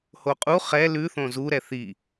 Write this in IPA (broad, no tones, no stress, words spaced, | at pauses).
hoqʼu χɛ lʉ θõzu ɾɛθi